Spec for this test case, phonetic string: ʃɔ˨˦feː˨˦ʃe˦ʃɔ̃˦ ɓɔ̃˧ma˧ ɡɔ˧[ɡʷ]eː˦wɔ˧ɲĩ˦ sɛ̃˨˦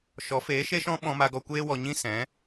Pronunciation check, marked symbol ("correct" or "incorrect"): incorrect